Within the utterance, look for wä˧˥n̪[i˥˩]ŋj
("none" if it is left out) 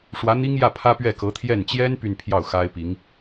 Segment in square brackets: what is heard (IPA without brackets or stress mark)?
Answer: i˥